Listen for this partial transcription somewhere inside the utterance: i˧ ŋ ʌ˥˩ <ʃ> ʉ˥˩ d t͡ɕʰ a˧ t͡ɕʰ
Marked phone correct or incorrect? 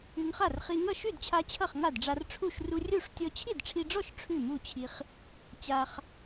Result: correct